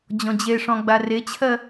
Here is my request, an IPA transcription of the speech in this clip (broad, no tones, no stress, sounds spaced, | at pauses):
d͡ʑ ɔ̃ d͡ʑ e ʂ ɔ̃ ɡ͡b a r e t͡ɕʰ ɜ